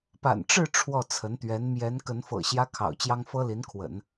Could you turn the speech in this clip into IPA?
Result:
p a̰˨˩ n ʈ͡ʂ ɻ̩˥˧ ʈ͡ʂʰ w ɔ˥˩ t͡sʰ ə˧˥ n t̪ ɥ ɛ˧˥ n m j ɛ˧˥ n k ə˧˥ n f ɤ̰˨˩ ɕ j ä˥ kʰ ɑ̰˨˩ ʊ̯ t͡ɕ j ɑ˥ ŋ f ɤ˥ l i˧˥ n kʰ w ə̰˨˩˦ n

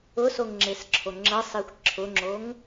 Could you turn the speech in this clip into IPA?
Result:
ʊ s o ŋ ŋ͡ǁ e s ǁʰ o ŋ͡ǁ ɜ sˤ i xʷ ǁʰ ʊ ŋ͡ǁ o ŋ

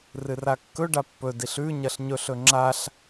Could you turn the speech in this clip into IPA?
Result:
r ɨ r a kː ɵ ɖ a pː ɵ d i ɬ ʉ ɲ ɐ ɬ ɲ ɵ ɬ ɵ ŋ͡ǁ a ɬ

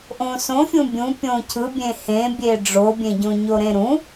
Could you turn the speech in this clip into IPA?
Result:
ʔ õ s õ fʲ ũ bʲ ũ pʲ õ cʰ ɯ bʲ ẽ h ẽ bʲ e ɖ͡ʐ o bʲ ẽ ɟ õ ɲ o ɾ ẽ ɾ ũ

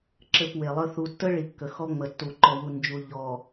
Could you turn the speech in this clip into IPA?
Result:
ǁ ɘ˦˨ p w e˨ lˠ ə˦ θ u˨ tː ə˦ ɭ i˨ kː ə˨ x ɔ˦ ŋ͡m ə˨ tː u˨ ǃ ɔ˨ w u˨ n d͡ʒ u˨ ʎ ɔ˨

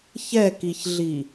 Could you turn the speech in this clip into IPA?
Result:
ç ɛ k i ç ɮ i

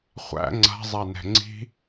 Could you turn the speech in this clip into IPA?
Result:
χʷ æ̰ ŋ͡ǀ a̤ zˤ a n ɛ̤ ŋ͡ǀ i̤

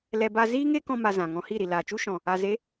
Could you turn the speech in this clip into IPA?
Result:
l ɛ˧ b a˦ z iː˦ ŋ e˦ k ɔ̃˧ m a˧ z ã˨ ŋ ɔ̃˧ h i˦˨ ɾ i˨ l aː˨ t͡ʃ u˦ ʃ ɔ̃˨ | a˨ z e˨˦

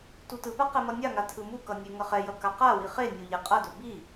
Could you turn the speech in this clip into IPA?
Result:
t u t ɯ p a q ɛ m ʌ nʲ a ŋ a tʰ ɯ m u k ʌ nʲ e ŋ ʌ χ ɛ j ʌ k a q a w i χ e nʲ o ʎ ɛ qʼ ʌ d o b i

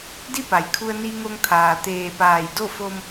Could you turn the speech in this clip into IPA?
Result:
d i˥˨ p a˩ j kʰ u˧ ə̯ n i˧ ŋ o˧ ŋ t̪ʰ aː˩ t̪ eː˧˩ p aː˧˩ j d o˥˨ f o˧ m

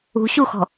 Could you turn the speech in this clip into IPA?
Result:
ṳ ɕ u x ɔ̤

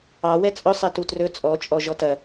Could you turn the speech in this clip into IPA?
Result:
ɑ w ɛ t͡sʼ ɵ sˤ ɛ t u t r ɵ t͡sʼ ɔ t͡ʃʼ ɔ ʒ ɔ t ɐ

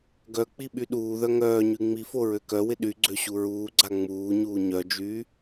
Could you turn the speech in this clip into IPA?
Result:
ɡ œ k͡p i ɓ y ɗ uː ð œ ŋ œː ɲ y ŋ͡m i f o ɹ ø k œ w ɪ ɗ y ɡ͡ǀ ø ɕ u ɹ uː ɡ͡ǀ a ŋ͡m uː ɲ uː ɲ œ d͡ʒ yː

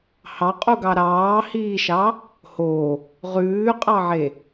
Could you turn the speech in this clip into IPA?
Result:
h ɑ qʼ u ɡ ɑ ɾ ɑː h iː ʃ ɑ | h oː | ʁ ʉː qʼ ɑ ʕ e

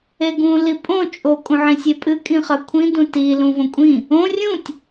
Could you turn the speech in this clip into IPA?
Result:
e ɡ ũ l i pʼ õ t͡ʃʼ o kʼ ũ ʕ ĩ sʲ e pʼ ɨ kʼ ĩ χ ɐ kʷʰ ĩ d ũ t i l ũ v õ kʷʼ ĩ | õ rʲ ũ tʲ

